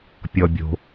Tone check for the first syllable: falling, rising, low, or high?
low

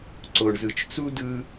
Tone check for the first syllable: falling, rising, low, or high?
low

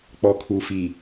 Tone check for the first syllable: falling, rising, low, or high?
low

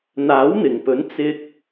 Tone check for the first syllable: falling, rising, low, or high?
rising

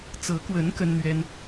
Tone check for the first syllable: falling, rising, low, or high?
rising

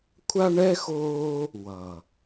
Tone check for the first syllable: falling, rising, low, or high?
high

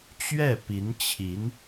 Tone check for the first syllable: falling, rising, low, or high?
falling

